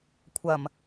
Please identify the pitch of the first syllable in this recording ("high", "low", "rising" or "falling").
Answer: low